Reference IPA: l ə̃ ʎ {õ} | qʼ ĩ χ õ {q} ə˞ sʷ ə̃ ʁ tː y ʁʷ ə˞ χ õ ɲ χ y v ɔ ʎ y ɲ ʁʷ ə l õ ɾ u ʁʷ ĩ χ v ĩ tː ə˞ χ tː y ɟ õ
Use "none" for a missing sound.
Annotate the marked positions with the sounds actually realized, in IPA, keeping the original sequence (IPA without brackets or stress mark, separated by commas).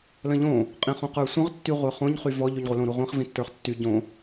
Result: õ, q